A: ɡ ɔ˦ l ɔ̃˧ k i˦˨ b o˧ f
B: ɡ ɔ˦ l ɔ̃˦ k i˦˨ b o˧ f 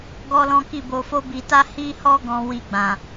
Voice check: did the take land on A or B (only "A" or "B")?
B